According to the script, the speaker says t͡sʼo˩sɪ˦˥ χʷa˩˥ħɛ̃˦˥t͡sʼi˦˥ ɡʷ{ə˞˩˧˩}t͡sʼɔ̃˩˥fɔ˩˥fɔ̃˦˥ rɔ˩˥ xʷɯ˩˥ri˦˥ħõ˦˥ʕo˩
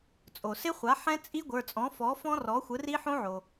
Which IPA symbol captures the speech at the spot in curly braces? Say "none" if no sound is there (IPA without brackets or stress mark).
ə˞˩˧˩